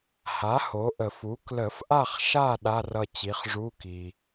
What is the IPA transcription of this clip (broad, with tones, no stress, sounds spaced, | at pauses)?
h a˩˥ h o˩˥ ʔ ə˨˩˦ f u˩˥ k l ə˨˩˦ f ʔ a˦˨ χ ʃ a˦˨ ɗ a˧˥˧ r ʌ˦˨ t͡ɕ i˩˥ χ ʐ u˧˥˧ k i˩